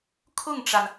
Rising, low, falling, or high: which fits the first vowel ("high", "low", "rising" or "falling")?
falling